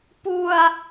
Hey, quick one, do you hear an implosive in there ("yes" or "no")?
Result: no